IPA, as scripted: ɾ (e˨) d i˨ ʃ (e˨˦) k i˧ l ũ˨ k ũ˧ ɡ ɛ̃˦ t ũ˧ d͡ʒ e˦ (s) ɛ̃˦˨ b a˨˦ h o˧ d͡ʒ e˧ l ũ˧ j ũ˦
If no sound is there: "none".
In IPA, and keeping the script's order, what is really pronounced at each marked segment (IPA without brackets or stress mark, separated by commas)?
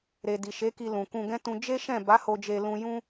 e˨, e˨˦, ʃ